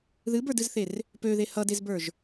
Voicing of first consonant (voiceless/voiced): voiced